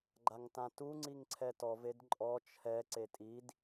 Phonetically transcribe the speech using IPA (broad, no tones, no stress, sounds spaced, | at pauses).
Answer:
ɡ͡ǃ a ŋ t ã t u ŋ͡ǀ i ŋ ǀʰ ɛ t ɔ v e d ǃʼ ɔ t͡ʃʰ ɛ ǀ e tʼ i d